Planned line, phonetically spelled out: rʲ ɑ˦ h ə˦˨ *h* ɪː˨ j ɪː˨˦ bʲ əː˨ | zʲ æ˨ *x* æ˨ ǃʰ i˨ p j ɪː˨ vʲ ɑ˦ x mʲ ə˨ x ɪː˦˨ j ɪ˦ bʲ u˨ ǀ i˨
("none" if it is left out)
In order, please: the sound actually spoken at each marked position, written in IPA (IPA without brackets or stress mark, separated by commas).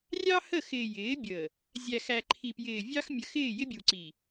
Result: x, x